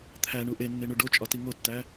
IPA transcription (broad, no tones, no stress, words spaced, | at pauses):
t̪ʰæɳu ʔenːeɳu ɖot͡ʃʼɒti ŋotːæ